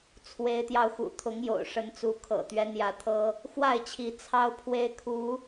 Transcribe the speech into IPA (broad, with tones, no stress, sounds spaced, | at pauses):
t͡sʰ w e˨˦ ɪ̯ t̪ j ɑ˧ ʊ̯ x ṵ˨˩ t̪ʰ ʊ˨˦ ŋ j o̰˨˩ ʊ̯ ʂ ə˨˦ n t͡s u˨˦ kʰ ɤ̰˨˩ t̪ ɥ ɛ˦ n̪ j ä˨˦ t̪ʰ ɤ˦ | x w a˥˨ ɪ̯ t͡ɕʰ i˨˦ t͡sʰ ɑ˦ ʊ̯ pʰ w e˦ ɪ̯ kʰ u˨˦